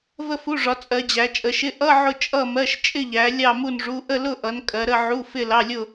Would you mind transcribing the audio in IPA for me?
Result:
və˥˧fu˧˥˧ʐɒ˨˦ t͡sʼɜ˨˦d͡ʑæ˨˦t͡ʃʼə˨˦ ʃɪ˧˥˧ ʔʌ˧˥˧ ʕʊ˥˧t͡ʃʼʌ˥˧mɜ˧˥˧ʃ t͡ʃʼɪ˥˧ʎæ˨˦ lʲɑ˥˧mu˥˧nʐu˧˥˧ ʔə˥˧lʊ˥˧ʔʌ˨˦n kʼɜ˨˦ɾə˥˧ʕu˧˥˧ fɪ˥˧lɑ˧˥˧lʲʊ˥˧

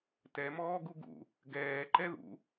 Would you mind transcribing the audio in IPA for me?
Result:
tɛmɔːɡu ɡṵ | ɡɛːǃɛ ðṵ

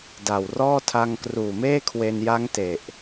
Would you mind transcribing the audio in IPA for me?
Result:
da˨˩wrɔː˥˩ tʰa˧ŋkruː˨˩meː˥˩kʰwe˧n ja˦˥ŋ te˨˩ʔ

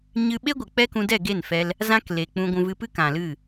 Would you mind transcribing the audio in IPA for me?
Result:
ɲɨ˧ɓe˦ ɡʷɨ˨k͡pɛ˦kũ˧dɛ˦˨ ɡe˦˨nfɛ˧l | zã˦kle˨k͡pũ˧ɡʷũ˧ vɨ˧pɨ˦kã˨lɨ˦˨

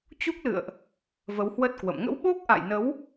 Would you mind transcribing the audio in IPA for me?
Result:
t͡ɕu˦˥k̚lɨ̰˧˨ə̯ʔ | və˨˦whwə˦˥t̚kwə̰˧˨m ŋə̰˧˥wɓo˦˥k̚ʔa̰˧˨jnə˨˦w

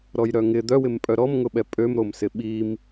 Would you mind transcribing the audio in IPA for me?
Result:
ɾɔjɾœŋɪ d̪œwɪmpʼœ ɾɔmŋʊɓɛ pʼømɾomsɪ ɓim

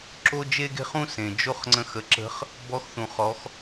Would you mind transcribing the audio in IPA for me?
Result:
ǁo˥d͡ʒe˥ɡe̤˥χ ũ˥ sẽ˩ d͡ʒo˥χŋ͡ǀə̃˧˥x ə˩˧ǁə̤˧˥χ | bɔ˧˥xθũ˩ χɔ˩˧x

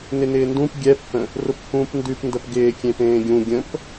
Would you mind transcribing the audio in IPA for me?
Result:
nɪnɪːndũp ɡʲɛphə̃ | rʊphũːpndʉpndəp ɡɪːkʲẽ pẽːɡʲũ ɡʲə̃p

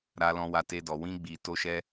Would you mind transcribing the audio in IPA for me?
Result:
ɾa˧lɔ̃˧ wa˧te˧dɔ˨ wĩ˧ɡ͡bi˨ to˧ʃɛ˧

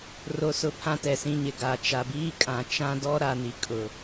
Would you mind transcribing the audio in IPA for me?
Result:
ro˨sʊ˨ pʰã˦tɛ˨sĩ˦ɲɪ˨ ɡa˦˨ t͡ʃa˨biː˦kʼã˨ t͡ʃã˦dɔ˦ ɾa˨ni˨ kʼʊ˨

